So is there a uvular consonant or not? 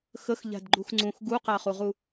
yes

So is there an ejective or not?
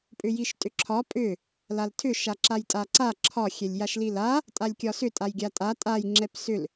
yes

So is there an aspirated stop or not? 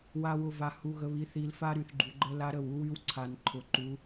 yes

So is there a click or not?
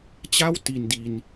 no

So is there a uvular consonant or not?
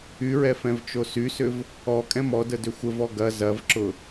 no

